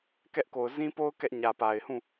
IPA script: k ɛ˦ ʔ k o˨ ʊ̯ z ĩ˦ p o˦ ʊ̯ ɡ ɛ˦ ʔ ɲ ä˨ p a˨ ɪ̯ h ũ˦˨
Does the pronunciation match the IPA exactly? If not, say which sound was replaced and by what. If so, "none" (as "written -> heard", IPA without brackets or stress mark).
ɡ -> k